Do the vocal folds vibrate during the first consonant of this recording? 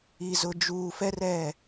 yes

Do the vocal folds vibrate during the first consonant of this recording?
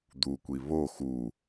yes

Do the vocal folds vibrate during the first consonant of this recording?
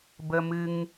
yes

